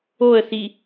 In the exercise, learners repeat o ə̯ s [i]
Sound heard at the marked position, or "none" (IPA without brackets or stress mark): i